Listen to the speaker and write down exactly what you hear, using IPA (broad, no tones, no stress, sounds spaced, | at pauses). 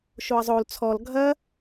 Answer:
ʃ o ɐ̯ zˤ o l t͡sʰ ɔ l ɡʱ ɐ